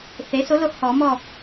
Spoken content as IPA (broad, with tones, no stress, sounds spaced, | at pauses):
θ e˩˥ s o˩˥ l o˨ h ɔ˨˩˦ m ɔ˦˨